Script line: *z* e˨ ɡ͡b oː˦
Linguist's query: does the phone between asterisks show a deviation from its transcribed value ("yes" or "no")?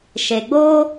yes